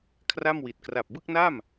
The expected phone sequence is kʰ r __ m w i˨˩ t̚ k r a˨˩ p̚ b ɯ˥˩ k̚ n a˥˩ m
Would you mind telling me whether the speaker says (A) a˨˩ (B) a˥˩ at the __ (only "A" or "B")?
B